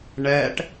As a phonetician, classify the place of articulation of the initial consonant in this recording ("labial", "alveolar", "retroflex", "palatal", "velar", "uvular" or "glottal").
retroflex